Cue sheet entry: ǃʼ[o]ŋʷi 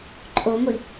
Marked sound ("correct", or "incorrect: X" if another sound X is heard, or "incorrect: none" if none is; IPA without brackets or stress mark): correct